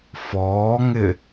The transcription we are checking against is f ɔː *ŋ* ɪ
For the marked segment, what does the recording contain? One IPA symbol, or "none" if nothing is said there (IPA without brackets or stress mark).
ŋ